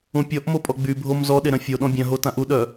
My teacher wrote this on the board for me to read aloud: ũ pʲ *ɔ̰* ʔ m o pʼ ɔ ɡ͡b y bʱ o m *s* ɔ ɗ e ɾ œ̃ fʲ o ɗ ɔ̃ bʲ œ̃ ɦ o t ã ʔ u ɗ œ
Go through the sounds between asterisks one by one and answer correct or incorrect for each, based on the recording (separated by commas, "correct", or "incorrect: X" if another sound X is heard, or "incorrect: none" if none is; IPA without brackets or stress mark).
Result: incorrect: ɔ, incorrect: z